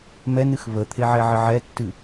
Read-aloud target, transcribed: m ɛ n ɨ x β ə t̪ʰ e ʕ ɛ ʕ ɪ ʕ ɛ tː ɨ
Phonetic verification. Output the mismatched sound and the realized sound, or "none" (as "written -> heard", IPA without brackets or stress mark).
none